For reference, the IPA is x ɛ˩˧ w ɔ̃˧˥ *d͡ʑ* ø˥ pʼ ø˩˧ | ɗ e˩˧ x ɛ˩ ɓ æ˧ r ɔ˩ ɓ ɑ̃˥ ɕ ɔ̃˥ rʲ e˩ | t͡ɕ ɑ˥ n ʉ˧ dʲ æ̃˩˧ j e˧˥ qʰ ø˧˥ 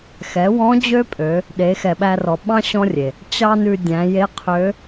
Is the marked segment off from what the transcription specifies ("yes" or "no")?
no